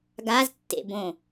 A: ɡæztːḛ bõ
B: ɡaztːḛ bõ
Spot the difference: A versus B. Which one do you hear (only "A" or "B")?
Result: B